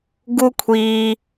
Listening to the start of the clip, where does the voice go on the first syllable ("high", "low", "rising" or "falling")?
high